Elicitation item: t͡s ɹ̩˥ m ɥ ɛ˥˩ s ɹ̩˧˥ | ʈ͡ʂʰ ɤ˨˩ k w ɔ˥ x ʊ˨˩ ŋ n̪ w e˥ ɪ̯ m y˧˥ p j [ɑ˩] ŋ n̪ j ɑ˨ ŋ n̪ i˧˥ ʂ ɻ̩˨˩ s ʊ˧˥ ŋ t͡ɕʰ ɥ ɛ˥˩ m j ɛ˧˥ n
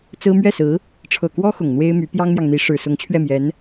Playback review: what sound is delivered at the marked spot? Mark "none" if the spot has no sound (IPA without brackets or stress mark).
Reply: ɑ˥